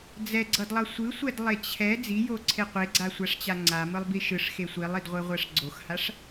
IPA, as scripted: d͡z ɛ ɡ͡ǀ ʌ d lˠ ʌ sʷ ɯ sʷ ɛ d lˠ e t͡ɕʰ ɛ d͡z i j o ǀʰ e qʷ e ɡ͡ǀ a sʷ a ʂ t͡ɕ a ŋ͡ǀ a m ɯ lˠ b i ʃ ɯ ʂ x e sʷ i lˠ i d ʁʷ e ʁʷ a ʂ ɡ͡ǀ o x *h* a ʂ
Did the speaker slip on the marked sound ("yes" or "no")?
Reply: no